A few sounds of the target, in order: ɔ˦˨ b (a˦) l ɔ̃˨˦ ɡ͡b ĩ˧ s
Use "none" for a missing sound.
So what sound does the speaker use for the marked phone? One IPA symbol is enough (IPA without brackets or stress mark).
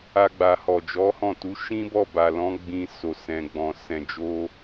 a˨